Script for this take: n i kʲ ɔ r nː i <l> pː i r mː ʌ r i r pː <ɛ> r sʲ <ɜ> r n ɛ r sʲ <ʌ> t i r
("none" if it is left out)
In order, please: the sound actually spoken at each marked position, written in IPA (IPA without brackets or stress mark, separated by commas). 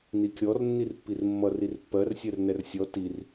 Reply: r, ɜ, ɜ, ɔ